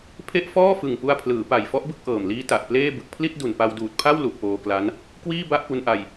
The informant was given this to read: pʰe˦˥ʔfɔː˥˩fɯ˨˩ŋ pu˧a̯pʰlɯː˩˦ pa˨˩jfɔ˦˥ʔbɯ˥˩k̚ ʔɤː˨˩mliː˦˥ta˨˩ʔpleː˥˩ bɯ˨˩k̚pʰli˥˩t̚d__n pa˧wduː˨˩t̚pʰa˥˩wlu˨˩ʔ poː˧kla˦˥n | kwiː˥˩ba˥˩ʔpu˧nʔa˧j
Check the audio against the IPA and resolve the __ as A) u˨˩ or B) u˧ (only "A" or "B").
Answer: A